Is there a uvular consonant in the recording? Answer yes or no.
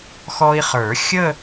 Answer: yes